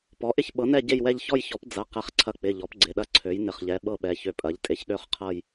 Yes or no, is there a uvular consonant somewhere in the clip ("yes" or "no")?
yes